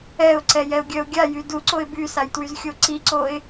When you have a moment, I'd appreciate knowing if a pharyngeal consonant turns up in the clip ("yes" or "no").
no